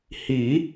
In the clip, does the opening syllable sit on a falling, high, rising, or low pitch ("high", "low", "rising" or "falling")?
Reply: rising